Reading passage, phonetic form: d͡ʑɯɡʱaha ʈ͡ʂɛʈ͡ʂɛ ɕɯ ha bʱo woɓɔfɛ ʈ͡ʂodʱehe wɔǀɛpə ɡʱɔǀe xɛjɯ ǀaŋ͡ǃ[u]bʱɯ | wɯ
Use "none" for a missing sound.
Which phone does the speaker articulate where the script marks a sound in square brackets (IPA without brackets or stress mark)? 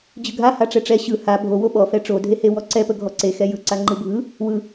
ɯ